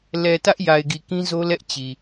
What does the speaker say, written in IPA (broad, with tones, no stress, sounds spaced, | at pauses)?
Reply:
l ɛ˨ t ä˦ ʔ j a˨ ɪ̯ ɡ i˨ k ĩ˦ z o˦ l ɛ˦ ʔ t͡ɕ i˨